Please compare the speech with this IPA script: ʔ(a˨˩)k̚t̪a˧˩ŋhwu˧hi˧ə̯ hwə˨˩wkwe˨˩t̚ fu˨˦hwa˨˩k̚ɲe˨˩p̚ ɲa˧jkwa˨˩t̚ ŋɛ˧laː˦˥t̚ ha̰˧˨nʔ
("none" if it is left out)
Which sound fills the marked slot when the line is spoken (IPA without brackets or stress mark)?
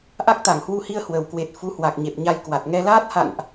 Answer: a˦˥